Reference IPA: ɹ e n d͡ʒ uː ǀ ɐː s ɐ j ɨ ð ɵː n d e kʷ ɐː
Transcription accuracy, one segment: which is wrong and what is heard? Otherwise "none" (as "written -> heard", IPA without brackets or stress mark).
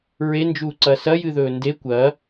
none